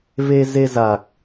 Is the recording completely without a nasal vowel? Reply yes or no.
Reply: yes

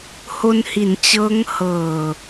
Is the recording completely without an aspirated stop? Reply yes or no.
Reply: yes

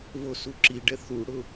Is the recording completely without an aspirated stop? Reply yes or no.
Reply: yes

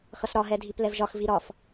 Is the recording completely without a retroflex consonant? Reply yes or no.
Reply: yes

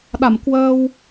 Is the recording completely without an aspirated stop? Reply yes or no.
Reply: yes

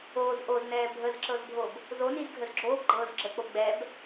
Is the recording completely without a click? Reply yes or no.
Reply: no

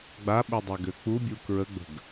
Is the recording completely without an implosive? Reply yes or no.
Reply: no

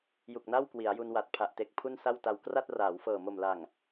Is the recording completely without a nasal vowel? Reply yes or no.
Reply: yes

